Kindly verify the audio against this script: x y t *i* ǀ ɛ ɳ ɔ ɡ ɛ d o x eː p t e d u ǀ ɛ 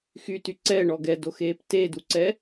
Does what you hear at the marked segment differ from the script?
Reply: yes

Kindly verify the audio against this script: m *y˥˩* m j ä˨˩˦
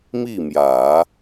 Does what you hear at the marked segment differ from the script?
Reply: yes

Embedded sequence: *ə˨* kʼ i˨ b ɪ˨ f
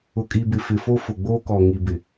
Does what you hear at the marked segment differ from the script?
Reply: yes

